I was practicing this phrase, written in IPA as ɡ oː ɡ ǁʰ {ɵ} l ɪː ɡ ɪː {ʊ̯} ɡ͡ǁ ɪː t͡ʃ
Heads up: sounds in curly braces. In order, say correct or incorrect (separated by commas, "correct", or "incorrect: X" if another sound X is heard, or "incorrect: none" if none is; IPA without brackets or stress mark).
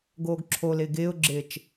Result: incorrect: o, correct